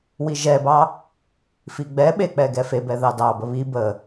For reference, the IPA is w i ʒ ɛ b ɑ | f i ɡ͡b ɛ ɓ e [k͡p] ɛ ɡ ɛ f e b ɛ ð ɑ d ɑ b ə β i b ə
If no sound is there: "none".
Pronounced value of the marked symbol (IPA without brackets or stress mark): k͡p